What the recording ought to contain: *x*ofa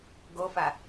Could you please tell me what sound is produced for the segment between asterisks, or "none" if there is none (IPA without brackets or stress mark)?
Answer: ɡ